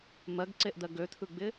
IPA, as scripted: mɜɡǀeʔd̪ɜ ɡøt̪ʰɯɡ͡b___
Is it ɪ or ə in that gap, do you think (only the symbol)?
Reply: ɪ